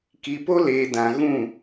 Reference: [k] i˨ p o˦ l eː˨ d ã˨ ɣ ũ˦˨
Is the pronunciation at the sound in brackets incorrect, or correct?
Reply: correct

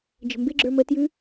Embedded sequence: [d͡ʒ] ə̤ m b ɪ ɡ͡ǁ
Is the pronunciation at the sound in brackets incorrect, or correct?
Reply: correct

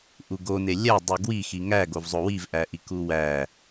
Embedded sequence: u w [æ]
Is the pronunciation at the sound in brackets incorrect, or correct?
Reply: correct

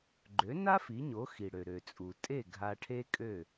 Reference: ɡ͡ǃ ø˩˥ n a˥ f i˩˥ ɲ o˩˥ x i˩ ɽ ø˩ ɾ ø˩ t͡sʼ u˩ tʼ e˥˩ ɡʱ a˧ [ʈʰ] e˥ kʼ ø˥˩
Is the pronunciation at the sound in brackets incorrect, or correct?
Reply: correct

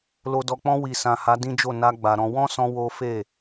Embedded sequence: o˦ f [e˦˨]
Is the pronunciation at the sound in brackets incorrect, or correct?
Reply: correct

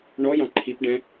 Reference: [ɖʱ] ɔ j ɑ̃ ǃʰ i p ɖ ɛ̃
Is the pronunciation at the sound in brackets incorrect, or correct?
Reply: incorrect: ɳ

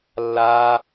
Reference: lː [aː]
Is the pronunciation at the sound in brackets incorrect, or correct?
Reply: correct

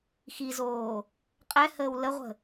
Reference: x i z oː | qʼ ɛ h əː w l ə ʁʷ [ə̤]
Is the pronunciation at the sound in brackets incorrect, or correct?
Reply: correct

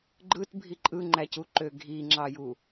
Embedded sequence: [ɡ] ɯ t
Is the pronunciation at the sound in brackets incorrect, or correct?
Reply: incorrect: ɡ͡ǃ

